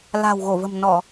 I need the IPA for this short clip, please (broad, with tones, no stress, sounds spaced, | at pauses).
l a̤˨˩ w ɣ o˧˩ v ə̤˨˩ m n ɔ˧˩˨